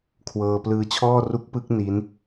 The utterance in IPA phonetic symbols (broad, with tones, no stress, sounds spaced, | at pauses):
kʰ w ɤː˧ p l ɯː˦˥ t͡ɕʰ ɔː˥˩ r u˦˥ k̚ p ɯ˦˥ k̚ n i˦˥ n